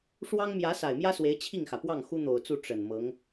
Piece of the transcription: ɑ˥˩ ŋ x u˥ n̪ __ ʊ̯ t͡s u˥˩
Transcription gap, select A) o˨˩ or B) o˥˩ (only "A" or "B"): A